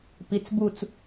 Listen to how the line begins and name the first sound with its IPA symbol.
p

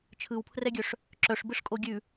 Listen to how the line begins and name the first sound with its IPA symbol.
t͡ʃʰ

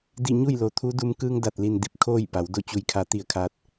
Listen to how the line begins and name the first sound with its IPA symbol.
d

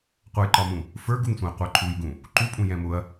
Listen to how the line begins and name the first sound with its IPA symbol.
qʷ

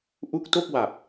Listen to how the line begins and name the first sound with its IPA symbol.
ʔ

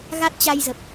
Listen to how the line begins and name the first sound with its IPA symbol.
ɣ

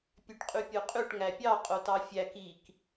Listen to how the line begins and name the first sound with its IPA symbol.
pʲ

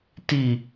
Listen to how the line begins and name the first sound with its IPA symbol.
t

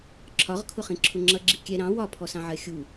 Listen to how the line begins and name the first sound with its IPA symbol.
ǁʰ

